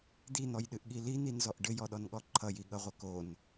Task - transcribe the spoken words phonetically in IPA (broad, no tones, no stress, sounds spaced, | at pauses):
d̪ i n̪ ɔ j ɗ ɨ ʔ ɠ i l i n̪ i n z ɔ ʔ ɖ ɘ j ɔ ɗ ɔ n ɠ ɔ ǃʰ ʌ j i ɠ ʌ ʁʷ ɘ k o n